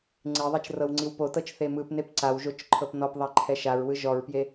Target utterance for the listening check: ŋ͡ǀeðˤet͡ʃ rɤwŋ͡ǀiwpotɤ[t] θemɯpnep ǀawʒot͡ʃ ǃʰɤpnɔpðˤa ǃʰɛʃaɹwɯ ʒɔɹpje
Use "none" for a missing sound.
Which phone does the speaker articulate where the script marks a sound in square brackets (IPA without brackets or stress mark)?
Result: t͡ʃ